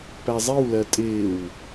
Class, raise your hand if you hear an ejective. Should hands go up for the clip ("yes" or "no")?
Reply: yes